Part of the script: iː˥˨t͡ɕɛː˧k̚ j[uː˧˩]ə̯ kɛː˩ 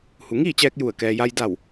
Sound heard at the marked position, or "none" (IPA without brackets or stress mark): u˧˩